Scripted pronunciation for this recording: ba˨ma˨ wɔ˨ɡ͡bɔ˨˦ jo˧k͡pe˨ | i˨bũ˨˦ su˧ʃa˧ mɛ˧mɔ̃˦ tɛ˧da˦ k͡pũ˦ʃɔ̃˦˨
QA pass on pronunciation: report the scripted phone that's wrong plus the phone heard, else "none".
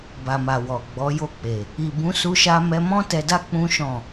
none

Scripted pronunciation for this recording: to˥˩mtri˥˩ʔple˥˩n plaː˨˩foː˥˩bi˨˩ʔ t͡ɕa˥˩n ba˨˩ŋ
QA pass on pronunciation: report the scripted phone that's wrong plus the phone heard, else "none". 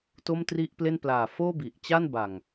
none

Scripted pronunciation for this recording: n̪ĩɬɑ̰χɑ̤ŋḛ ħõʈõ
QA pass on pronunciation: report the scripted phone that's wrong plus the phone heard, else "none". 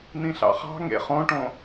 ħ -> χ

